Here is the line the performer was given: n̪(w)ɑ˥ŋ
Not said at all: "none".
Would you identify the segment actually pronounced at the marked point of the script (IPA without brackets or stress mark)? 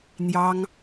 j